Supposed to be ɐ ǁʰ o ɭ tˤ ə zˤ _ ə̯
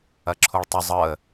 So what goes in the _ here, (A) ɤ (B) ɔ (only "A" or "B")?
A